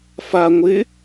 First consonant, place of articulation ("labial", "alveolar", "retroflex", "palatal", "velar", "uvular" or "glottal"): labial